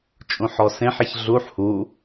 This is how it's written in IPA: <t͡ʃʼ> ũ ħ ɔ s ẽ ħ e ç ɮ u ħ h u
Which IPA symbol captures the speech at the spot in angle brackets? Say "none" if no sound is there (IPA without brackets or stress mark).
t͡ʃʼ